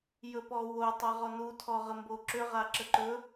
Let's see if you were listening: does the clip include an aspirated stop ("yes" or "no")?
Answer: yes